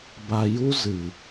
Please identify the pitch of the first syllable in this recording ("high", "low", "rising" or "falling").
low